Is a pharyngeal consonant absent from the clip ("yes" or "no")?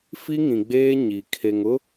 yes